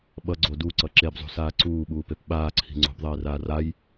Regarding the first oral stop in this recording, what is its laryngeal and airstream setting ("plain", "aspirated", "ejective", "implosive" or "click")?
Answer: implosive